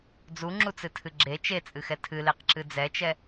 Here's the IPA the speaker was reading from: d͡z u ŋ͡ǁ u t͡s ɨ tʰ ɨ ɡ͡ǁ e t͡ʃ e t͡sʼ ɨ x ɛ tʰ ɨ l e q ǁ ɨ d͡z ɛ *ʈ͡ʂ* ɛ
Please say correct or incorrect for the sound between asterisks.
incorrect